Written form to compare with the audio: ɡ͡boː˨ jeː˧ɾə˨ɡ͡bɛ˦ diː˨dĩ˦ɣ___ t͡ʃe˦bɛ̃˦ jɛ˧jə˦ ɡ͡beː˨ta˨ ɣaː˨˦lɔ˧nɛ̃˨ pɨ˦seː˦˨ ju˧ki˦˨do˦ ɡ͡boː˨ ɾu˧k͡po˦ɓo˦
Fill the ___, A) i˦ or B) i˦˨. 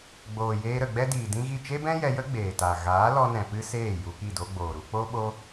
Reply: B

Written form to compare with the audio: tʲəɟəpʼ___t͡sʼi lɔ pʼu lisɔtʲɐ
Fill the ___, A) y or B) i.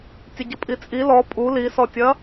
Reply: B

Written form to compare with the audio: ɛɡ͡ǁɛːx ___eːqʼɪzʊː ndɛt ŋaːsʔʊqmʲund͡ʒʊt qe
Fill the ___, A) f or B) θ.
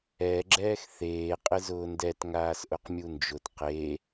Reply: B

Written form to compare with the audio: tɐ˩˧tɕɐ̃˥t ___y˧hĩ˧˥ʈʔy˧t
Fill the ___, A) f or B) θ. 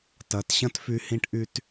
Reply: A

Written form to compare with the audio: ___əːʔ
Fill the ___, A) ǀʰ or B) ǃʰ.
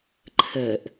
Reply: B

